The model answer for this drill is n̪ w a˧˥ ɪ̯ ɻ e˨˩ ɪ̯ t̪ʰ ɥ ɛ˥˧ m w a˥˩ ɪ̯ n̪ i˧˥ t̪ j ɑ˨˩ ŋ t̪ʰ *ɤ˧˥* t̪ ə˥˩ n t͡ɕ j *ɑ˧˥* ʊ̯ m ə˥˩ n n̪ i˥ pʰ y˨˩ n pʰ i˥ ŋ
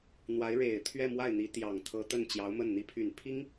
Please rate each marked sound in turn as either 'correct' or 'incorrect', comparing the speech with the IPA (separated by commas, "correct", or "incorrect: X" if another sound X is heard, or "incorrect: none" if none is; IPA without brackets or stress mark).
correct, correct